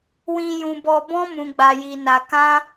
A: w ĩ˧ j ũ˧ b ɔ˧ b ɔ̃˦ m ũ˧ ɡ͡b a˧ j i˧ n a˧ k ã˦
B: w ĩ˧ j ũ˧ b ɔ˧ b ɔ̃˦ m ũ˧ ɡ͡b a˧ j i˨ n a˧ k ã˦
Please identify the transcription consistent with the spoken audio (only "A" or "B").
A